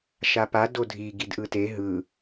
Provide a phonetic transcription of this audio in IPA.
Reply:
ʃ a p a d o dʱ i ɡ i d ʔ ɯ t e ɦ ɯ

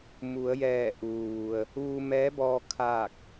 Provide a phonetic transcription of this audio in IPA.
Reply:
m u˩˧ ə̯ j ɛː˧˩ ʔ uː˩ ʋ u˩ ə̯ | ʋ u˧ m ɛː˧˥ b ɔː˧ kʰ aː˥˨ k̚

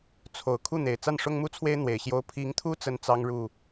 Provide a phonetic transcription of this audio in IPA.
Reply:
t͡sʰ o˨˩ ʊ̯ kʰ u˥˩ n̪ e˨˩ ɪ̯ t͡s a˥˩ n ʂ ʊ˥ ŋ m u˥˩ t͡sʰ w e˥ ɪ̯ n̪ w e˨˩ ɪ̯ ɕ j o˥ ʊ̯ pʰ i˧˥ ŋ t̪ʰ u˥ t͡s ə˥ n t͡s ɑ˥ ŋ ɻ u˥˩

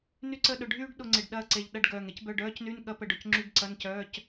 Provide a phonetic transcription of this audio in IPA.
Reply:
n y˦˨ ǀ ə˦˨ ɗ ʊ˨˩ ɖʱ yː˥ ɖ ɗ ʊ˦˨ ŋ͡ǀ ɪ˨˩ ɖ ɗ ɐː˦˨ ǀ e˨˩ ʎ ɗ ɐ˦˨ ɖ ɡ œː˨˩ ŋ e˥ c b œ˧˥˧ ɖ œː˥ c n y˧˥˧ n ɠ ɐ˥ p ə˦˨ ɖ ʊ˨˩ c ŋ͡ǁ y˧˥˧ ɡ ǀ ɐ˧˥˧ n c œː˧˥˧ c

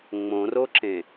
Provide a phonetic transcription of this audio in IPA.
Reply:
ŋ͡m õ r o ǁ ẽ

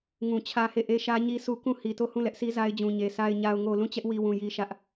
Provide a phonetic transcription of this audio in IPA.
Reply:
ŋ ũ˨ t͡ɕʰ ä˦ h e˦˨ ʔ e˦ ʃ ä˦ ɲ i˦ s u˦ k ũ˦˨ h i˨ t o˦˨ h ũ˦˨ l ɛ˦ ʔ s i˦ z a˦ ɪ̯ d͡ʑ ũ˨ ɲ e˨ sʰ a˨ ɪ̯ ɲ a˨ ʊ̯ ŋ o˨ l ũ˦˨ t͡ɕ ɛ˦ ʔ w i˨ w ũ˨ j i˦ ʃ ä˦ ʔ

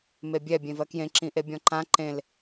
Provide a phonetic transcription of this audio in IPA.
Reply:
m e bʲ ɛ bʲ ẽ v ɜ k j ẽ ǁ ĩ ʔ e bʲ ɔ̃ ǃ ã ǃ ẽ l

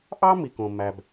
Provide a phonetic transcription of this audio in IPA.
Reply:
ʔ ɑ˥ m i˩ k õ˩ m æ˩ b

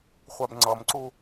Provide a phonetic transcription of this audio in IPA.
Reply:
χʷ a b ŋ͡ǀ ʌ m ǀ u

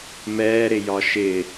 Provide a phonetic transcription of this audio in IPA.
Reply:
m ɛː ɾ ɪ j ɒ ʃ ɪ

